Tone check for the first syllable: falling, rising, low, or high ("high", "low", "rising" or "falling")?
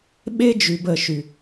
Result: high